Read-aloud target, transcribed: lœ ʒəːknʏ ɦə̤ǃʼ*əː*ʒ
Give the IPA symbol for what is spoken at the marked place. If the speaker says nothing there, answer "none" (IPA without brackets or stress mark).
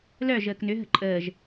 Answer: əː